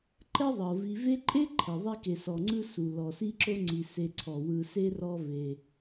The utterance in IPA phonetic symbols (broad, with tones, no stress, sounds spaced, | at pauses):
ǃ ɛ˦ ðˤ ɤ˩ v i˨ v e˦ ǃʼ e˥ ǃʰ ɛ˩ ðˤ i˦ k e˨ s ɔ˩ ŋ͡ǀ ɯ˦ s u˩ l ɔ˩ s i˦ ǁ o˦ ŋ͡ǀ i˨ s e˨ ǀʰ ɔ˩ w ɯ˨ s e˥ r ɔ˦ v e˨